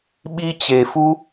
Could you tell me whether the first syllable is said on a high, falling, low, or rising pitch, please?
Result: high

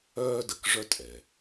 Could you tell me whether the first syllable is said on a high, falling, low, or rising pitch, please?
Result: high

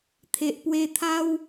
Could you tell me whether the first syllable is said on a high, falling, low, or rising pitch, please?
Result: low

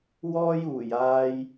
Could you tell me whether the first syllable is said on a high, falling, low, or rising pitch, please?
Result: high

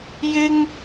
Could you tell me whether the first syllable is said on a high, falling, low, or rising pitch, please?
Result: high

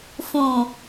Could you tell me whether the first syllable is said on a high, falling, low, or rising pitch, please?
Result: low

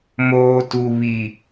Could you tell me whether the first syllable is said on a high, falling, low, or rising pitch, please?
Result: low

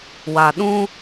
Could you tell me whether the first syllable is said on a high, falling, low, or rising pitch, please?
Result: low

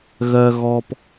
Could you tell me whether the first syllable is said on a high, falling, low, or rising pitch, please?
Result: low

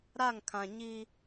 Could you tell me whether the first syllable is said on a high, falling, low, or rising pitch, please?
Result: falling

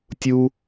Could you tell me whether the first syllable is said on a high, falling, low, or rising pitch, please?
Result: high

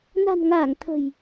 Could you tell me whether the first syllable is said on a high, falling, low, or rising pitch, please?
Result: low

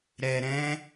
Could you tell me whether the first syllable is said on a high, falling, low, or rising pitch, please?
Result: low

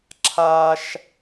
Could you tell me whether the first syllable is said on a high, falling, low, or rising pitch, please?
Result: high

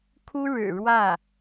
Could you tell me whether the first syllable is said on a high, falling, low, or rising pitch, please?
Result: high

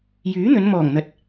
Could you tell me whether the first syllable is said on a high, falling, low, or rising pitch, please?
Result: rising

